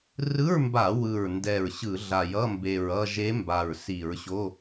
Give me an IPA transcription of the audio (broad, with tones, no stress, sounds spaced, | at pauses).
r ɯ˧˥˧ ɹ m b a˧˩˧ w ɯ˨˩ ɹ n d ɛ˨˩ ɹ ɕ ɯ˧˩˧ ɮ a˨˩ j ʌ˧˥˧ m b e˨˩ ɹ ʌ˥˧ ʒ e˧˥ m b a˨˩ ɹ s i˧˩˧ ɹ ɕ o˧˥˧